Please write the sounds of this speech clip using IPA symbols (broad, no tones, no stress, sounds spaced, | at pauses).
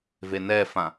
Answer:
v e n ɛ f ã